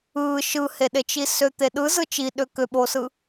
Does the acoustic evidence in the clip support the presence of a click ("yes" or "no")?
no